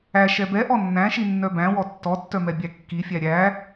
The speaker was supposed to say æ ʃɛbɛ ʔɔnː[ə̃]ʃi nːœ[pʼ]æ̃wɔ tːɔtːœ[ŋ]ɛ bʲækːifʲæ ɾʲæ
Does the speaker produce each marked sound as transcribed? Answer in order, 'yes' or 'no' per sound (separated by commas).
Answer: no, no, no